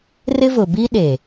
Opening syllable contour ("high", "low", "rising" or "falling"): high